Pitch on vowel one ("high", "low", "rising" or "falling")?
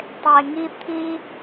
high